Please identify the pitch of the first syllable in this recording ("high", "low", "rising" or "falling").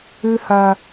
high